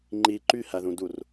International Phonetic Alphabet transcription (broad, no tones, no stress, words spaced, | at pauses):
ŋ͡ǃi ǃyhæðũdur